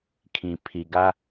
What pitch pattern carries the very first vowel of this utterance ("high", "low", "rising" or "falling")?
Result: low